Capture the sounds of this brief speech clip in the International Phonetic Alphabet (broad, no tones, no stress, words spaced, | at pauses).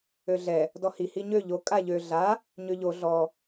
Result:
øɮɛ | dɔhi hiɲø ʎo kʼaʎø ɮa | ɲøʎo ɮɔ